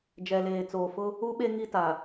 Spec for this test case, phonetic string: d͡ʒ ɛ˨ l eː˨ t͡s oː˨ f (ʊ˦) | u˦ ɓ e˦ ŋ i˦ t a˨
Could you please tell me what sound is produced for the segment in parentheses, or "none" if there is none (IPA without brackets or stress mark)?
ʊ˦